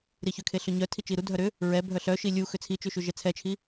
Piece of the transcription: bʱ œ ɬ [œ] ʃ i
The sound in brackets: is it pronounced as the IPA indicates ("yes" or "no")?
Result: yes